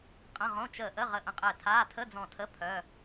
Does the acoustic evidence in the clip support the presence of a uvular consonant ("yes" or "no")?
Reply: yes